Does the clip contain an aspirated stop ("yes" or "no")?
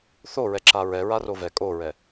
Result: no